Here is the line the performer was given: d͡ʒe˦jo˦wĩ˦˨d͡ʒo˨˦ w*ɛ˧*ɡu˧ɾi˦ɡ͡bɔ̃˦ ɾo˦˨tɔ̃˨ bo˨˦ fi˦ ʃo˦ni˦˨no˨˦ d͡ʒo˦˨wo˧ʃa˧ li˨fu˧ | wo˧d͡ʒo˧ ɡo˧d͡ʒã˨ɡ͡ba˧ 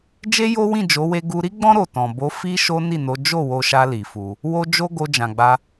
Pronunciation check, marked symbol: incorrect: e˧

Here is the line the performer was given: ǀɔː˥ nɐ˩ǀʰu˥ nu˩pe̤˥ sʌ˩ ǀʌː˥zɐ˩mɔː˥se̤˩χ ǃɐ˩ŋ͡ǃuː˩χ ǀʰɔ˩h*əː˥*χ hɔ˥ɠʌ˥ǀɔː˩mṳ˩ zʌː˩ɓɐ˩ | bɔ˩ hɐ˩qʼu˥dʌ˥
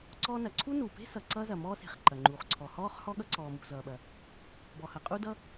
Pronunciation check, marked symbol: incorrect: ɔː˥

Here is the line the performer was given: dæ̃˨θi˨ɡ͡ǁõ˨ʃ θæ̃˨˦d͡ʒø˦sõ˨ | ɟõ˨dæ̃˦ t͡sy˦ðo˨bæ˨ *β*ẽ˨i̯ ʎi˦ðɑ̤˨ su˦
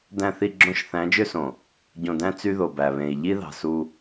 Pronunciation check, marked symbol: correct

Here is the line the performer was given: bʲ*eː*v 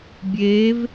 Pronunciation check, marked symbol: correct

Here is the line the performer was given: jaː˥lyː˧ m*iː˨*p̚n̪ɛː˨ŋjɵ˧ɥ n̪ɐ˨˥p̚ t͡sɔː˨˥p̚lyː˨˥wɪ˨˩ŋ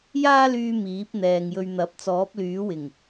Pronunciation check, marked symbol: incorrect: iː˨˥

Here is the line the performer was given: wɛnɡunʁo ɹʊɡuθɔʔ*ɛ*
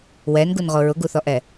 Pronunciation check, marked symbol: correct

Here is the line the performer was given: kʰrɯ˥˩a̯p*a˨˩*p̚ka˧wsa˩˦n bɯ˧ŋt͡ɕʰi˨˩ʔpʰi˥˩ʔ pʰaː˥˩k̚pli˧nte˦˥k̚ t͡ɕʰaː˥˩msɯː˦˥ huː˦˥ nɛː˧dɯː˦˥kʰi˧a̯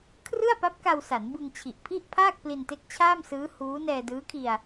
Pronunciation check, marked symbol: incorrect: a˦˥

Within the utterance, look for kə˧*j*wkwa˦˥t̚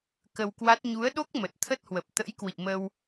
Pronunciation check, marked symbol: incorrect: none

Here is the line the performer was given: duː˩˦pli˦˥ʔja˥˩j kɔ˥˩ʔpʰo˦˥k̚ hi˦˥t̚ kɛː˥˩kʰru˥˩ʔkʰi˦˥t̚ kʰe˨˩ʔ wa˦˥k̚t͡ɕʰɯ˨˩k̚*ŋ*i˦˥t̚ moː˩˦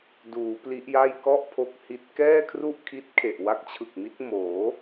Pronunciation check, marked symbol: incorrect: m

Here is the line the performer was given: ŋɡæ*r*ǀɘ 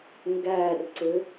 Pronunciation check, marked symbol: correct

